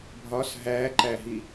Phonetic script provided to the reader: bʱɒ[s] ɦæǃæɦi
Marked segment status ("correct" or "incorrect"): correct